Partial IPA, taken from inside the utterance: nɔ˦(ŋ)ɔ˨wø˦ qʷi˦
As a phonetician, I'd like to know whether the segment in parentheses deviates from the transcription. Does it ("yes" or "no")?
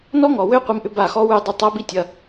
no